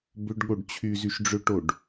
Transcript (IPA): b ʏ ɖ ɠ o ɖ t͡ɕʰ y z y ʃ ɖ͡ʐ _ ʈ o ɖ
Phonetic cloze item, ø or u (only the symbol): ø